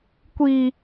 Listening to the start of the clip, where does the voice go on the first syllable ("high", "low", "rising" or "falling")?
low